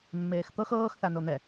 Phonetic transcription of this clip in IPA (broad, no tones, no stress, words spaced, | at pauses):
mːeːxt̪ɤx ɤːx θanon̪ɛ